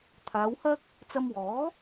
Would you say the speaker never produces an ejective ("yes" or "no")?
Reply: yes